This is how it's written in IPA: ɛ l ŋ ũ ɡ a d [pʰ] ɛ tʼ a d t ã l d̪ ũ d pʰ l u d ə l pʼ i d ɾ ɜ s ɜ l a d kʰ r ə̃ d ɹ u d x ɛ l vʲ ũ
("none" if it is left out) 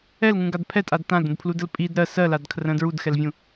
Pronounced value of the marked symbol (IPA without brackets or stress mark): pʰ